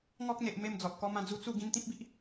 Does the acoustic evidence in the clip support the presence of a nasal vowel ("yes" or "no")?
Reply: yes